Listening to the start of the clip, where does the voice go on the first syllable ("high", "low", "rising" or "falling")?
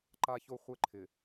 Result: high